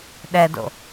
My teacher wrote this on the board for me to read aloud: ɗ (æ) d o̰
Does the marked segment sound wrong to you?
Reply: yes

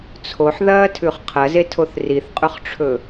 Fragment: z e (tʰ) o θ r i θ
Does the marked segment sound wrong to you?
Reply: no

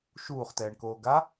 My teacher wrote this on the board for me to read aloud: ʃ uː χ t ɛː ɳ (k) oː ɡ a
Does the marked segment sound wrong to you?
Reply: no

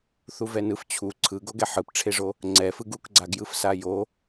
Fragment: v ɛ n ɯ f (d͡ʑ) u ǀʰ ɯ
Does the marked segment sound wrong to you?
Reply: yes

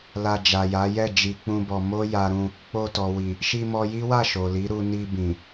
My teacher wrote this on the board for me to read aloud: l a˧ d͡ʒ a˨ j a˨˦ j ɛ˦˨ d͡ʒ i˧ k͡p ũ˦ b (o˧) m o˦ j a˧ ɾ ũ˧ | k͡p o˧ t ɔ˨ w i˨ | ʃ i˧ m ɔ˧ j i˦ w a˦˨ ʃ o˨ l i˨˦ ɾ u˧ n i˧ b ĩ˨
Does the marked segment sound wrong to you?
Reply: yes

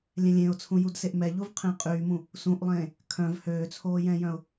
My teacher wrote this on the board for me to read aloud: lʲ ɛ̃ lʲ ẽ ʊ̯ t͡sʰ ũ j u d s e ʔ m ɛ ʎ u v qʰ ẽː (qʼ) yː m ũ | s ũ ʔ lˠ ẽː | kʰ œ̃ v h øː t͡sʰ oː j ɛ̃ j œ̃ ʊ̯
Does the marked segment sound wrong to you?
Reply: no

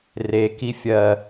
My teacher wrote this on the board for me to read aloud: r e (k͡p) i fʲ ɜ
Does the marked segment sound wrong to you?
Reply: yes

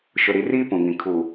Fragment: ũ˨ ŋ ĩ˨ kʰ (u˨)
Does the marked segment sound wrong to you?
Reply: no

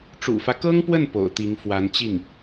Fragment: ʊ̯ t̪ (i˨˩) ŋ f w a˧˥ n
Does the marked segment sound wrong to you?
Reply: yes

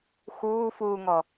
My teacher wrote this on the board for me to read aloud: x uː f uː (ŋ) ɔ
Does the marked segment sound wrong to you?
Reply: no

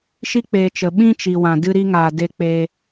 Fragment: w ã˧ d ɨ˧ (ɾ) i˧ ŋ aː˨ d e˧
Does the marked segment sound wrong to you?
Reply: no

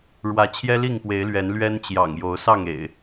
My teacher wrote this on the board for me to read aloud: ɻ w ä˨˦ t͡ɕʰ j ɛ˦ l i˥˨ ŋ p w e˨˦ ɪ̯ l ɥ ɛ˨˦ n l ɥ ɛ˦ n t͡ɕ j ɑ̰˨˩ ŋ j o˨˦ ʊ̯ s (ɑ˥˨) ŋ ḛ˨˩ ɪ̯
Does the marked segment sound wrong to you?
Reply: no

